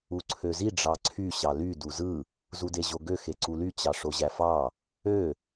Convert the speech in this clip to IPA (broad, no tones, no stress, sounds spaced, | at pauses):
u ǀʰ ø z i ɖ͡ʐ ɑ ǀʰ y ɕ ɑ l y d u z ɯ | z u d e ʑ o ɡ ø x e ǀ u l y t͡ɕ ɑ ʂ o ʑ æ f ɑ | ø